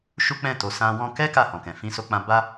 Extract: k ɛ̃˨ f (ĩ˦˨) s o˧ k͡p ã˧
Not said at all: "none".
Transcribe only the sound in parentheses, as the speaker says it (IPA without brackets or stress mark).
ĩ˧